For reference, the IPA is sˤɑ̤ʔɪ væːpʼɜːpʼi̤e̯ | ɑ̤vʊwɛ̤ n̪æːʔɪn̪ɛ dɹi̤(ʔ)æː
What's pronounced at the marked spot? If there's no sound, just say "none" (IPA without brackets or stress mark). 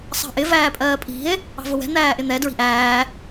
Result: ʔ